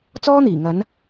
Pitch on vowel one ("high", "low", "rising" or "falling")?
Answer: high